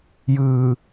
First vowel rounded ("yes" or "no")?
no